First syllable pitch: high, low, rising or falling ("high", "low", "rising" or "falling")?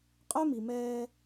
high